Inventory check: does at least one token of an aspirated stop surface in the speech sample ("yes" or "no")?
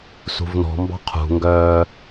yes